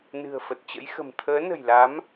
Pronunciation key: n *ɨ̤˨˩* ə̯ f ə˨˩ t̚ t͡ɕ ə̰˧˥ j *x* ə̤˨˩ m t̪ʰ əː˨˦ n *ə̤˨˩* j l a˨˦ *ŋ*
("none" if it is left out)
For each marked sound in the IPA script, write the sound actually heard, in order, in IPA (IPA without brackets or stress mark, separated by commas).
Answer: ɨ̤˨˩, x, ə̤˨˩, m